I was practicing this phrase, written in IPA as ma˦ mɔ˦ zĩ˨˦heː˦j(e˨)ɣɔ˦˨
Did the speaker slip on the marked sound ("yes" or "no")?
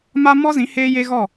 yes